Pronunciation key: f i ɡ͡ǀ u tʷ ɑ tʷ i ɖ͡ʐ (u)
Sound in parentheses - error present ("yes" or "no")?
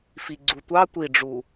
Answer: no